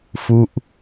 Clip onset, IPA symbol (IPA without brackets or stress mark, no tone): f